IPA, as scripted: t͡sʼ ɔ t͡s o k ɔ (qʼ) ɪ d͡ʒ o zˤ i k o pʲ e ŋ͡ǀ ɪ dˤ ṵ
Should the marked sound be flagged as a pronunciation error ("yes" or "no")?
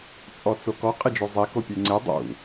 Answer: no